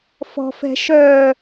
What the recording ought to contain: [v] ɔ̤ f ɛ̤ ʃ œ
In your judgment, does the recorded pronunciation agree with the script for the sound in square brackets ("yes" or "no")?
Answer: no